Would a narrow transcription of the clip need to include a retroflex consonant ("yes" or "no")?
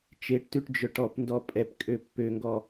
yes